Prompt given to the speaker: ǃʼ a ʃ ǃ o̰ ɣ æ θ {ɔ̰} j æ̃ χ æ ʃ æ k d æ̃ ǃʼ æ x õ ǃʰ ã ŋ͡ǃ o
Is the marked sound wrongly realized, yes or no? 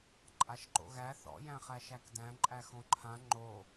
no